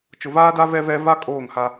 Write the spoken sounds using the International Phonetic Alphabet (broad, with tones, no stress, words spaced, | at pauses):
t͡ʃʊ˨vaː˦da˦ vɛ˦ vɛ˦ va˦ kʼoː˦˨ŋha˦